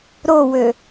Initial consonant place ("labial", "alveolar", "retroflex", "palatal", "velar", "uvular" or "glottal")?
alveolar